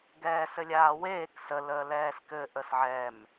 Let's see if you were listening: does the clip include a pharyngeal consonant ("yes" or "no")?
yes